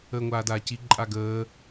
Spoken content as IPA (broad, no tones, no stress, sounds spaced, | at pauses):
əː ŋʷ aː d aː c i ǃʼ a ɡ əː